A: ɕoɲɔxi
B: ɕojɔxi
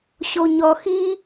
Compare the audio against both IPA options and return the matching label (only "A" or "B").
A